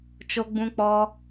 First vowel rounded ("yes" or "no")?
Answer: yes